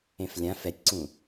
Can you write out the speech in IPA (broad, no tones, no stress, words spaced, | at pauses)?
ẽflʲã fɛtʲǀũ